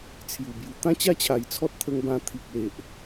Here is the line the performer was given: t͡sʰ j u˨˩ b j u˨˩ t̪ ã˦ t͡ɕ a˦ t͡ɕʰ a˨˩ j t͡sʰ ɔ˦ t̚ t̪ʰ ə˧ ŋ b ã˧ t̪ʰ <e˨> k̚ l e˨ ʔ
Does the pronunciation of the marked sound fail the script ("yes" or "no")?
yes